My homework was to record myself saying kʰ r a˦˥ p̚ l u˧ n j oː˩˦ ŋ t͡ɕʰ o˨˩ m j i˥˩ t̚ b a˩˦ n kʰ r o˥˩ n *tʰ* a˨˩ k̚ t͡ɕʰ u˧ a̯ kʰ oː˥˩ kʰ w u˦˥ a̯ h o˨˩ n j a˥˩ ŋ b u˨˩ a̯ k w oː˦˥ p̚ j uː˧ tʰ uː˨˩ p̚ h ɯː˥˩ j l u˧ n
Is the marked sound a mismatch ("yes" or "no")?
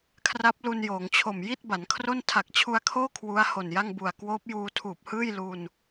no